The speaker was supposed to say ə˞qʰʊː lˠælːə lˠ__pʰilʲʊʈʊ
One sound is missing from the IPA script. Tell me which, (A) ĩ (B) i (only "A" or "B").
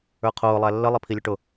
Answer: B